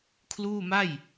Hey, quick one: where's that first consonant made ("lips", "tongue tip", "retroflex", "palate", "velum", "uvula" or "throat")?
velum